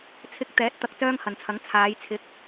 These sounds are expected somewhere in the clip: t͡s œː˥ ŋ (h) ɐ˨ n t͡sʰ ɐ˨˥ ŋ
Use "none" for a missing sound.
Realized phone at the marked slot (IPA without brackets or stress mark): h